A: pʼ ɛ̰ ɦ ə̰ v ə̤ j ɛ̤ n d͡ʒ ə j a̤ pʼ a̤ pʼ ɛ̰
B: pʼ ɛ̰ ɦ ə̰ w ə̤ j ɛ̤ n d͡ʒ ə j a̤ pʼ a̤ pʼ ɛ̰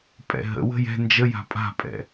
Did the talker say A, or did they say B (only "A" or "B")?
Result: B